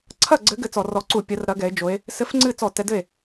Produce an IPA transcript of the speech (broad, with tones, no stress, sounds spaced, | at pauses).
ǀʰ ɐ˥˩ ɡ͡ǀ ɘ˨˦ ɡ ɘ˧˥˧ t͡s ɔ˧˩˧ r ɔ˨˦ ǀ u˧˩˧ pʲ ɐ˨˦ r ɾ ɐ˨˦ ɡ ɛ˨˦ e̯ d͡ʒ o˨˦ e̯ | s ɘ˧˥˧ f ŋ͡ǀ ɨ˥˩ t͡s ɔ˧˩˧ t ɛ˨˦ d ɘ˥˩ e̯